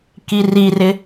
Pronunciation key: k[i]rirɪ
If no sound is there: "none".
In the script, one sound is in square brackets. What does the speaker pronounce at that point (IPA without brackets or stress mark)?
i